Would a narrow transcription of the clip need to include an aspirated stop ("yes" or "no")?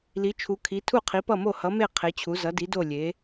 yes